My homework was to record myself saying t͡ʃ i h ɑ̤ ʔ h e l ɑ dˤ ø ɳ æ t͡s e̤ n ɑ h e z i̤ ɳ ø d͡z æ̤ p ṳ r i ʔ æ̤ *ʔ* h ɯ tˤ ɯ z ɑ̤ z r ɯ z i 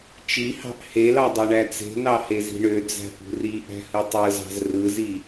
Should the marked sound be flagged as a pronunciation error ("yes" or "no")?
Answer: yes